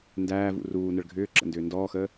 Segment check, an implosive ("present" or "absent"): absent